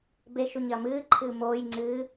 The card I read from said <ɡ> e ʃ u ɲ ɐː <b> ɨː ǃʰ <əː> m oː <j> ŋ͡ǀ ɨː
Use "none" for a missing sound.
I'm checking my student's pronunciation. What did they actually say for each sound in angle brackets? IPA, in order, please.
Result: b, m, ɨː, j

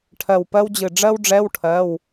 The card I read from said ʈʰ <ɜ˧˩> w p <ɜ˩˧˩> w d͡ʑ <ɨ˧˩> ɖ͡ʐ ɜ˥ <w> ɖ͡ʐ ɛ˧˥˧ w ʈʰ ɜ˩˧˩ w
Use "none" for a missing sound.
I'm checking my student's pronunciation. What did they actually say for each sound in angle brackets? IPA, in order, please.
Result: ɜ˧˩, ɜ˥, ɨ˧˩, w

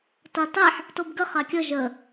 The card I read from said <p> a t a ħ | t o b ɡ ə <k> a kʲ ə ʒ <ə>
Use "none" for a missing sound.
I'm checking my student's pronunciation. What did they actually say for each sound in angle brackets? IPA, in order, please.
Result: t, χ, ə

